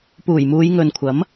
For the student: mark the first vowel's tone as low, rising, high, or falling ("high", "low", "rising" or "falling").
low